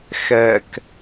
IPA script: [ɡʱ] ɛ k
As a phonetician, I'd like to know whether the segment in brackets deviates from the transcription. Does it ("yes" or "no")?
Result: yes